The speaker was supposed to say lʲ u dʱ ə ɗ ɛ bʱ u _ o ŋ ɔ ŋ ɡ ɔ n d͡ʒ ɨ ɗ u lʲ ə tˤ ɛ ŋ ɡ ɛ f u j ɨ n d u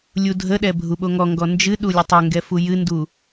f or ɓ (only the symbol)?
ɓ